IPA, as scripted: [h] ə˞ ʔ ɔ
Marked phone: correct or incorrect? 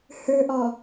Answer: correct